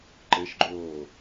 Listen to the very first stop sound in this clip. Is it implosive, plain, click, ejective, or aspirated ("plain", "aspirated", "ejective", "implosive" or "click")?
click